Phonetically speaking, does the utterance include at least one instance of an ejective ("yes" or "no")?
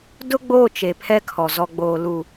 no